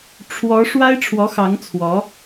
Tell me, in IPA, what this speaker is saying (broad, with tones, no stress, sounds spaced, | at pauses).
ʈ͡ʂʰ w ɔ˧˥ ʂ w a˥ ɪ̯ ʈ͡ʂʰ w ɔ˧˥ x ɑ˧˥ ŋ t͡sʰ w ɔ˧˥